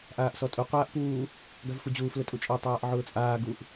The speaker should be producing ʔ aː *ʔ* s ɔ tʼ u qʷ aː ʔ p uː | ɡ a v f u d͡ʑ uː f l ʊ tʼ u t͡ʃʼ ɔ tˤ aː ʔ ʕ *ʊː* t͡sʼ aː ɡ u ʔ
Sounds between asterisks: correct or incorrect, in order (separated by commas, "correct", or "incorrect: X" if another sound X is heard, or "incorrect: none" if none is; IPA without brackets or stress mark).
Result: correct, correct